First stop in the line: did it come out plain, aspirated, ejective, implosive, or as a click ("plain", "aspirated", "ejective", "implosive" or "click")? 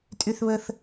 ejective